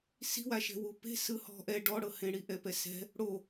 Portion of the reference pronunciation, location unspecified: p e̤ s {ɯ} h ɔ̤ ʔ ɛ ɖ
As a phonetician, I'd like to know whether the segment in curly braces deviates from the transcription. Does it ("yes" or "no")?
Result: no